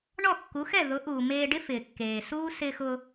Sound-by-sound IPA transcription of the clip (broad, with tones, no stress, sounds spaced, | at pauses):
ɳ ɔ˥˩ kː u˩˥ x ɛ˥˩ ð ʊ˩˥ ʔ uː˩ m eː˧ ɖ ɪ˥ f ɪː˩ kː eː˩ s uː˥ s ɪː˧ x ʊː˧